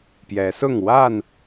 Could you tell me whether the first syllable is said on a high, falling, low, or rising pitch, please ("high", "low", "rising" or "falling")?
rising